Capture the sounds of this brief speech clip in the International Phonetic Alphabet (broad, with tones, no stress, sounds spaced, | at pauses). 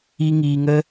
i˧ ŋ iː˧ ŋ ə˦